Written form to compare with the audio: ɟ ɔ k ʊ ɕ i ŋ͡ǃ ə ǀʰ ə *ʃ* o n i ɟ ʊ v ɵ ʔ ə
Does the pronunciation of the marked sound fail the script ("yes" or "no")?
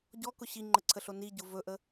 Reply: yes